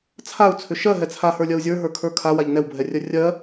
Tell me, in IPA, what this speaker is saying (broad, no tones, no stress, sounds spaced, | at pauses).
t͡sʰ a u̯ t͡sʰ ʏ ʃ ɜ ɦ ɛ t͡sʰ a h ə˞ lʲ ɜ u̯ zʲ ə˞ ɦ ə˞ kʰ ə˞ kʰ a w a ʎ n ɛ w bʱ ɛ rʲ ɜ rʲ ɜ